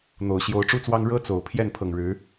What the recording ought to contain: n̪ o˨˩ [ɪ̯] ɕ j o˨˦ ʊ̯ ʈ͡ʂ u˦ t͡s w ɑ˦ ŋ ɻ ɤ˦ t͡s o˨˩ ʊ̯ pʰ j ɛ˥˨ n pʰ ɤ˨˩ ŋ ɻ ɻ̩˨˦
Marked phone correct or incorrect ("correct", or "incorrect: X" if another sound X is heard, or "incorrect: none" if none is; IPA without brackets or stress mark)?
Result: incorrect: ʊ̯